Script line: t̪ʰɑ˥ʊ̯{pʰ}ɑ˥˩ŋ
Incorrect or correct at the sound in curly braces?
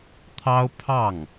correct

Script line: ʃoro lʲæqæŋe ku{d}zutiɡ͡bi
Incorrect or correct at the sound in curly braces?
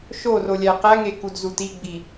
correct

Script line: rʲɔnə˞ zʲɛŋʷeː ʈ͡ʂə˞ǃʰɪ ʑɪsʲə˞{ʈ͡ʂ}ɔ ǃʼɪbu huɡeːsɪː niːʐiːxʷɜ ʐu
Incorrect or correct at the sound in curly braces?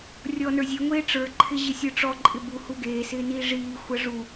correct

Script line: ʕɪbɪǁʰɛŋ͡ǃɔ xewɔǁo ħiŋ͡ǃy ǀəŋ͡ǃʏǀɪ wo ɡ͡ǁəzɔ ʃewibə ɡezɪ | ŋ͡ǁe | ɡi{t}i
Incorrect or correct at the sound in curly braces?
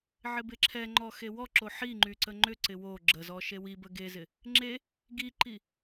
incorrect: ǃ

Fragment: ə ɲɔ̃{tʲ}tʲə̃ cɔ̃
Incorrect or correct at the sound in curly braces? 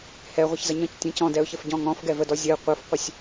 incorrect: c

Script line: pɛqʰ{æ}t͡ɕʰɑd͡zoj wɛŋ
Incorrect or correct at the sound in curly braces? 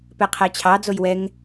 correct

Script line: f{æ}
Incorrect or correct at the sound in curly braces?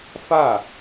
incorrect: a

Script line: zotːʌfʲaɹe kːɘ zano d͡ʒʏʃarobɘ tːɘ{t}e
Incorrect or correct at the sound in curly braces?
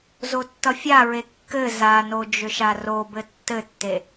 incorrect: tː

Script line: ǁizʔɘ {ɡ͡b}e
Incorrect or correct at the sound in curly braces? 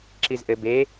incorrect: b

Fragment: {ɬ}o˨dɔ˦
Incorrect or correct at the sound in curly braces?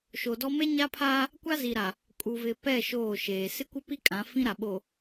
incorrect: ʃ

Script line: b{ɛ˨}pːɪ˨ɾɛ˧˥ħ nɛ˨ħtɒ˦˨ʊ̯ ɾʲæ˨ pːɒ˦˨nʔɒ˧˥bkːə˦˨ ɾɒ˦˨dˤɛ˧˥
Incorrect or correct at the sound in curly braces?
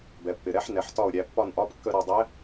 correct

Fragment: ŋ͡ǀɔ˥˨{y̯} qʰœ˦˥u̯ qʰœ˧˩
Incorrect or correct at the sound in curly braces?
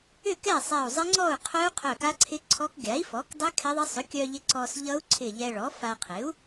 incorrect: u̯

